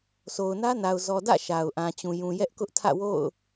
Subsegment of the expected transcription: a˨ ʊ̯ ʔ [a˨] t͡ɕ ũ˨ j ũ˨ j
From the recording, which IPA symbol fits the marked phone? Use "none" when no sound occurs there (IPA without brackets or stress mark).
ã˨